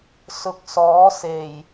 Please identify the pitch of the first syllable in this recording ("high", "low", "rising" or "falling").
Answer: low